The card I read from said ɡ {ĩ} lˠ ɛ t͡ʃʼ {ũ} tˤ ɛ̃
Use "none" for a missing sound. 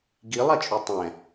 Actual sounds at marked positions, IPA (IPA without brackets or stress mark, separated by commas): i, u